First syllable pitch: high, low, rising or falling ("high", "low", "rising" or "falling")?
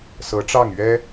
rising